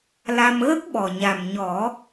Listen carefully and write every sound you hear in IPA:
l a˧ m ɣ ə˦˥ k̚ ɓ ɔ˨˩ ɲ a˨˩ m ɲ ɔ˨˩˦

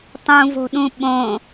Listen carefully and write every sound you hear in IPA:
tˤ ũ v o̤ ɗ ũ ɓ õ

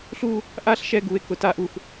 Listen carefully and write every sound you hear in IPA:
ɬ u˦ | ʔ a˦ ɬ ʃ ɛ˦ ɡ u˨ e̯ k ʊ˨ t a˦ ʔ u˨ x

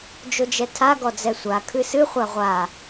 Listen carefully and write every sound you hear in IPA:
d͡ʒ o d͡ʒ ɛ tʰ a ɡ ɔ d͡z ɛ sʷ a kʰ ɨ s ɨ χʷ a ʁʷ a

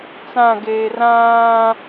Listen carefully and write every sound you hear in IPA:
t͡s ã ɡ eː r ãː

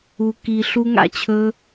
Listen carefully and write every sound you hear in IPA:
u˦ k i˦ ɬ u˥ ŋ a̰˥ t͡ɕʰ ɵ˥

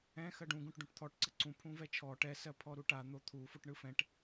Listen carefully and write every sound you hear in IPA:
ɛ̃ x ɜ ɖ ũ ɡ ũ ʈ ɖ ũ ʈ t̪ʰ ɔ ʈ ǀ ə ǀ ũ pʰ ũ v ɛ t͡ʃʰ ɔ ʈ ɛ s ɜ pʰ ɔ ɾ u ʈ a n̪ o t̪ʰ u f o ʈ ɳ ɯ f ɛ̃ ʈ

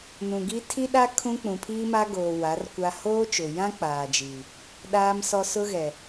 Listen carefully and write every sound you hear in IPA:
n ũ˨ ɡ i˦ tʰ i˦ ɗ a˦ kʰ ũ˦ k͡p ũ˨ pʰ iː˦ m a˦ ɡ oː˨ w a˨˦ r kʷ a˦ h oː˦ t͡ʃ ʊ˨ j ã˦ k͡p aː˨ d͡ʒ iː˨ | ɗ aː˦ m s ɔ˦ s ʊ˦ ɣ ɛ˨

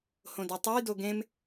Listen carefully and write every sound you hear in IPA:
h õ d e tˤ o j d o ɡ ẽ m

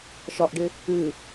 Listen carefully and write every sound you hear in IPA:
ʃ ɒ ʔ ɖ ɪ | ɨ

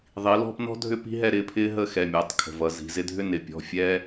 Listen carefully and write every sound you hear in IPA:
ðˤ i˩˧ l ɔ̤˥˧ p n ɔ̤˥ dʱ ʏ˥ p i̤˥ ɦ ɛ˥˧ ɾ ɪː˩˧˩ pʰ ɪː˥ ɦ ə˥˧ x ɛ˩˧˩ mʲ ʌː˩˧ tˤ kʰ ə̤˩˧˩ v ʌ˩˧ z i̤˩˧ z ɪ˥ dʱ ʏ˥ n ɪ˩˧ pʲ ɔ̤˩˧˩ fʲ ɛ˥

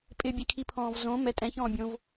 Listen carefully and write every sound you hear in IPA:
pʼ ɪ bʲ ɛ kʰ i pʰ ɔ̃ː v z õ m ɛ tʼ ɛ̃ ç ɔ̃ː bʲ õ v

